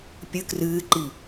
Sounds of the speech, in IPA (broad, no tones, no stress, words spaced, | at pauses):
pʲɨ krɨːǃi